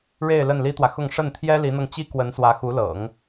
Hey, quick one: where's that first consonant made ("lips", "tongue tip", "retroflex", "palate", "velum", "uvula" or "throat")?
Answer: retroflex